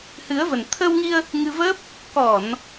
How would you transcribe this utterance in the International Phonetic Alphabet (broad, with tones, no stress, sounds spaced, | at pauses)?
h ɨ˨˦ ə̯ v ə˨˩ n t̪ʰ ə˧ w ŋ i˧ ə̯ | ŋ ɨ˧ v ə˦˥ p̚ | k ɔ˧˩˨ n